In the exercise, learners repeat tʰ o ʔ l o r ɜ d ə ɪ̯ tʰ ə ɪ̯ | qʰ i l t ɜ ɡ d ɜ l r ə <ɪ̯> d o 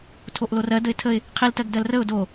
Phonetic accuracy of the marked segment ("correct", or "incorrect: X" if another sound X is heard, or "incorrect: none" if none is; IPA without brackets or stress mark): incorrect: ʊ̯